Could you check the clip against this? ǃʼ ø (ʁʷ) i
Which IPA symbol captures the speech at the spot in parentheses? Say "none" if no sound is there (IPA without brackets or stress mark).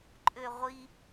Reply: ʁʷ